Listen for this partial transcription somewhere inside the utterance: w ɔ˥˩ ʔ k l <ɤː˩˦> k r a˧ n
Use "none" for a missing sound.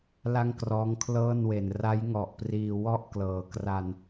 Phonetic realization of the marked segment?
ɤː˩˦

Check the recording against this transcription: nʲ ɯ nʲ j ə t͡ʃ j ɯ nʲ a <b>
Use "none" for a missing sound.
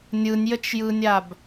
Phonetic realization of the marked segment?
b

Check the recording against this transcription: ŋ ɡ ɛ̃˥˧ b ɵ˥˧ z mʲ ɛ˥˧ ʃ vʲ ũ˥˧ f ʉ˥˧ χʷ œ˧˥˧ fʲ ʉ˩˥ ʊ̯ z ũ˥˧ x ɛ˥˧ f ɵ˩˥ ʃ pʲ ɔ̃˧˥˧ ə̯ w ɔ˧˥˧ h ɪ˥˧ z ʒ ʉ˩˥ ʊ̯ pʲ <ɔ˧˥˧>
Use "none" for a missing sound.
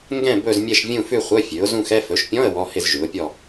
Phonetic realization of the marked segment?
ɔ˥˧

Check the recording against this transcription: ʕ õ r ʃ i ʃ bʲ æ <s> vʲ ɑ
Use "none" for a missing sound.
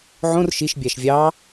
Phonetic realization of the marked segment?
ʃ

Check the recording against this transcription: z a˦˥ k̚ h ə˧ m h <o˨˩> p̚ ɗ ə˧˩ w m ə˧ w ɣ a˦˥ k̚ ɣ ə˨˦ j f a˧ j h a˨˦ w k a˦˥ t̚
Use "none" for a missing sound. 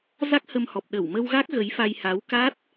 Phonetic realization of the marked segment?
ɔ˨˩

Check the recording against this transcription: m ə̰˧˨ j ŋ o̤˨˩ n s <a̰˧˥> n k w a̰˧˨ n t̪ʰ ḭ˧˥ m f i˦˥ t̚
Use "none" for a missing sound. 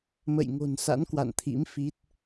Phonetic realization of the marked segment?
a̰˧˥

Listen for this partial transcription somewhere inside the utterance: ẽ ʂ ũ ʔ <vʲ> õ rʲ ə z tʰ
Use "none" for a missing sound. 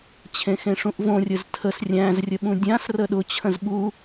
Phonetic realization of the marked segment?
v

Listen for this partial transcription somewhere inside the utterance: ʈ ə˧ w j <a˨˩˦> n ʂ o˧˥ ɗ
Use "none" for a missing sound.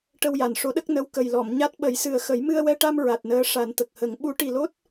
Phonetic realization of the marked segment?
a˨˩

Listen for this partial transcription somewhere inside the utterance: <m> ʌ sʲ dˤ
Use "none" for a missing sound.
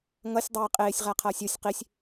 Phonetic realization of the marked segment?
ŋ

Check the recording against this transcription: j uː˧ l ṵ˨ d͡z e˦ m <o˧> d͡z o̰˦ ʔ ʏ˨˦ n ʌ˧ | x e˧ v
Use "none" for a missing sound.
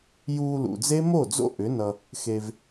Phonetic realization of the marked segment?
o˦˨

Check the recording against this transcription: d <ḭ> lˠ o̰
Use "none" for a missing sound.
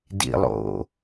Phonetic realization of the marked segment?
ḭ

